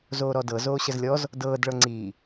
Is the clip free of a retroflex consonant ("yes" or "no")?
no